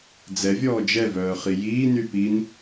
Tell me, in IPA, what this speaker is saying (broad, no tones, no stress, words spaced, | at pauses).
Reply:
d͡zɛ vʲɔːd͡ʒɛvœː χijiːny pin